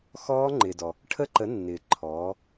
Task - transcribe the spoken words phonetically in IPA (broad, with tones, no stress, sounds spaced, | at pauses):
x ɔː˦˥ ŋ͡ǃ ɪː˨ d ɔ˨ | ʈʰ ə˦˥ ǃ ə˨˥ nː ɪː˨ ǃʰ ɔː˨˥